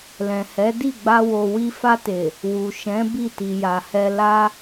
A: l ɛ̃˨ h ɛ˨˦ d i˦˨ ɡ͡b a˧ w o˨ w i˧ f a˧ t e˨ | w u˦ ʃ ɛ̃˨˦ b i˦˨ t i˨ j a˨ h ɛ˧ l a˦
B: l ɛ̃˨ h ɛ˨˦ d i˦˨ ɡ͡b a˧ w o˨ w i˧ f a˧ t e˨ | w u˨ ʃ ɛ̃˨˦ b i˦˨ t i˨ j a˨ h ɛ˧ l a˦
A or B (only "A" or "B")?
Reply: B